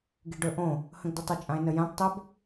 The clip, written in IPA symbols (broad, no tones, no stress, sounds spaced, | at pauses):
ɡ i ɖ ɵ ʔ õ | h ə̃ ɡ d ɵ tˤ ɐ t͡ʃʼ ã e̯ n ə j ã p tˤ ə b